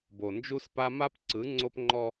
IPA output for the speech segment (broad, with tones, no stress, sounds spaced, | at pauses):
b o˨ n d͡ʒ u˦ s p a˦ m a˦ p ǀ ɯ˨˦ ŋ͡ǀ o˦ p ŋ͡ǃ ɔ˦